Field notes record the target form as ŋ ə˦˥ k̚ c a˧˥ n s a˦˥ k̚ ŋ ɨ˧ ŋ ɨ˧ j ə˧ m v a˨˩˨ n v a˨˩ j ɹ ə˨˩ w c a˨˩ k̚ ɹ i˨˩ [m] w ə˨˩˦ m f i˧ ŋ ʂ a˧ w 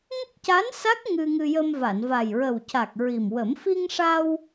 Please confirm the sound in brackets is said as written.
yes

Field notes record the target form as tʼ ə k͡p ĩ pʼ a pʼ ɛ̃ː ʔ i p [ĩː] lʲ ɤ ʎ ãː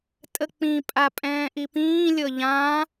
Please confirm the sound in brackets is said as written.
yes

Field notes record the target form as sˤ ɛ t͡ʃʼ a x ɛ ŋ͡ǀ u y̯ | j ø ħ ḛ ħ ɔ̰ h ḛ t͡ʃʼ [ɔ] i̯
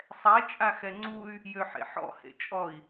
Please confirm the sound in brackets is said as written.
yes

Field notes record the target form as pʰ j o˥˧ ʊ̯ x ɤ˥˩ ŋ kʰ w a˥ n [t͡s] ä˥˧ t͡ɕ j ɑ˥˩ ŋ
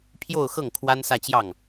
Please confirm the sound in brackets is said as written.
no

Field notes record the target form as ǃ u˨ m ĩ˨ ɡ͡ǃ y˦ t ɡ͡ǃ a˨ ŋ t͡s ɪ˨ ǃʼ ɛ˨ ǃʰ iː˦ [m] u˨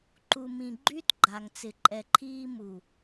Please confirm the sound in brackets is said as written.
yes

